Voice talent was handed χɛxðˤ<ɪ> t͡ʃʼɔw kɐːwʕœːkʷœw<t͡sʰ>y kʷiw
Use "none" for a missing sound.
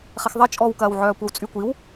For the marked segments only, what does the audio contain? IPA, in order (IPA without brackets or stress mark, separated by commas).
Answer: ɪ, t͡sʼ